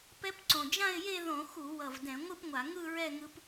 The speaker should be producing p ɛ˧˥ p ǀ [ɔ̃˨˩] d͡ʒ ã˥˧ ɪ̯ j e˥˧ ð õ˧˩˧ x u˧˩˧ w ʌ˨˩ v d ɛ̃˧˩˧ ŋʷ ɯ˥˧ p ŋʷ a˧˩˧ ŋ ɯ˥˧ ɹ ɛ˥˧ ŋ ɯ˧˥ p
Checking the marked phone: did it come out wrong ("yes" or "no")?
yes